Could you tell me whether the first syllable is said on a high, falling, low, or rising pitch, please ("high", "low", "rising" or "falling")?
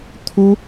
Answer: high